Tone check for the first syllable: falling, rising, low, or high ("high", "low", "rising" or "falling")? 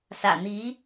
low